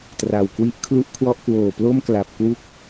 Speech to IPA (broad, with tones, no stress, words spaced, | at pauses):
tra˨˩wkwi˥˩ʔ kʰlu˥˩ʔkʰwɔ˥˩ʔ kwoː˨˩plo˥˩m kla˨˩p̚ kwu˥˩k̚